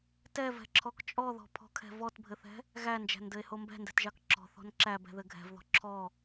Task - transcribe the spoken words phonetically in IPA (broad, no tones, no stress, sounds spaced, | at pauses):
t ɛ v ɛ̤ ǁʰ ɔ k t͡ʃʼ ɔ ð ɔ̤ pʰ ɔ̤ kʰ ɛ̤ v ɔ t bʱ ɘ θ ɛ̤ | ɣ æ n d͡ʒ æ̤ n d ɘ e̯ h o m b ɛ̤ n d ɛ̤ t ʒ ɑ k ǁ ɔ̤ θ ɔ̤ n ǁ æ b ɛ̤ ð ɘ ɡʱ ɛ̤ v ð ɔ̤ ǁʰ ɔ